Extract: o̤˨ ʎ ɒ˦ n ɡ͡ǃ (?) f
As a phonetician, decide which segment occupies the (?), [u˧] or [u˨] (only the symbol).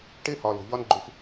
u˧